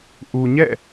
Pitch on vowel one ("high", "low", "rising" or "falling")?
low